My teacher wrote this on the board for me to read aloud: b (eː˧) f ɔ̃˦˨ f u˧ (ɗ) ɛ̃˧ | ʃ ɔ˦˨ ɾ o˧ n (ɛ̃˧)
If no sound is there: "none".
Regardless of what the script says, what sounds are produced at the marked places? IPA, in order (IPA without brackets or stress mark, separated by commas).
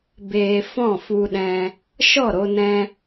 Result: eː˧, ɗ, ɛ̃˧